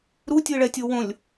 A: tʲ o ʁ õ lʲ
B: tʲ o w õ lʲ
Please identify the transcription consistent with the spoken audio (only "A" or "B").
B